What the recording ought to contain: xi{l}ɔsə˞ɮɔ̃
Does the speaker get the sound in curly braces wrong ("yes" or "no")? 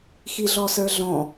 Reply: yes